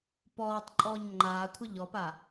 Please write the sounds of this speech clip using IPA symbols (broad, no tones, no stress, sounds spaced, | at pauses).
p ɔː tˤ ǃʼ ɔː ɲ ŋ͡ǃ aː kʷʰ ɐ ʎ ɔ p a